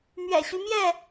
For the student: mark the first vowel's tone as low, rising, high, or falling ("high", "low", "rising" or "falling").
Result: low